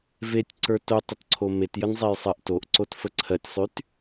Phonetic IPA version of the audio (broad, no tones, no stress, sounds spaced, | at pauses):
v e tʲ ǀ ə˞ t o tˤ ə t ǀʰ o m e t j ə n zˤ e j sˤ ɜ ʔ t o ʔ ǀ o t f ə ǀʰ ɜ tʲ sˤ y t